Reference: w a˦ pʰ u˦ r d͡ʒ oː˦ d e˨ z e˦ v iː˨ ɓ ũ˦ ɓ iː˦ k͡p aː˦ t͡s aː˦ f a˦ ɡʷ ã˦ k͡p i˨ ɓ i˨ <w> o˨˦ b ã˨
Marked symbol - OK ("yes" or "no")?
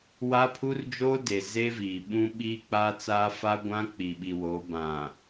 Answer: yes